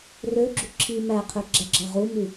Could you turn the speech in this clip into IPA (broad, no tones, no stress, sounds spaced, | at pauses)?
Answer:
r ø ɡ͡ǁ u ǁʰ i m æ qʰ ø ɡ͡ǁ æ ɡ͡ǁ ɑ ʁ u m y